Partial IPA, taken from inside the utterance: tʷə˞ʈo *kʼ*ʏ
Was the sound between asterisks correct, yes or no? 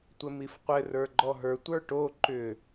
no